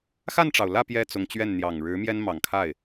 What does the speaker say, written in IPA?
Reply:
x a˥˩ n ʈ͡ʂ ɑ˩ ʊ̯ l ä˥˩ p j ɛ˥ t͡s ʊ˧˥ ŋ t͡ɕ ɥ ɛ˥˩ n n̪ j ɑ˨˩ ŋ ɻ ɻ̩˧˥ m j ɛ˥ n m ɑ˨˩ ŋ kʰ a˥˩ ɪ̯

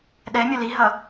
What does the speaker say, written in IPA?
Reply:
ɗ ɛ mʲ ɒ l i ɦ ʌ

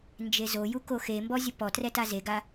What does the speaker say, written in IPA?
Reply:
n d͡ʒ e z o j u k o x e m b ɔ zʲ ʊ p ɔ t r ɛ t a z e ɡ a

